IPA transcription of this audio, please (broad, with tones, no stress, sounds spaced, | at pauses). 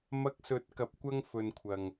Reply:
m ɐ˧ k̚ s ɵ˨˥ t̚ k ɐ˨ p̚ kʷ ɐ˧ ŋ f ɵ˨ n kʷʰ ɐ˨ ŋ